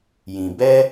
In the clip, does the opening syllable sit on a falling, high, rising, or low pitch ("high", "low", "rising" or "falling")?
low